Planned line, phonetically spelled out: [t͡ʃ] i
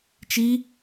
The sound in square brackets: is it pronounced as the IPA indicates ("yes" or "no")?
yes